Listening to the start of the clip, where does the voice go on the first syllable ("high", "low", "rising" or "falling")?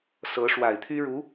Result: rising